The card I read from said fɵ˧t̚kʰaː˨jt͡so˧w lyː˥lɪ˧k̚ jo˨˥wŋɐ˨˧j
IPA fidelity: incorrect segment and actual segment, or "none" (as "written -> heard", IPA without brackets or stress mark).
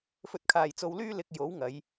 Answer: none